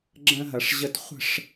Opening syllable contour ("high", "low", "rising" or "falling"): high